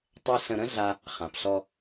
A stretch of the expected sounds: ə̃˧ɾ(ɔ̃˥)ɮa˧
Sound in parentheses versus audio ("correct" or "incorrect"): incorrect